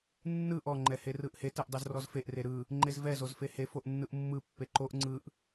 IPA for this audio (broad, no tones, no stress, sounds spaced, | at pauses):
nː ɯ ʔ ɔ ŋ͡ǃ ɛ h e r ɯ ʔ h e t ɛ ʔ dˤ e z r ɔ z f e ʔ r e ɾ ɯ | ŋ͡ǃ e z v ɛ z o z f e h e f o ʔ nː ɯ ʔ mː ɯ pː e ǃ o ʔ ŋ͡ǀ ɯ ʔ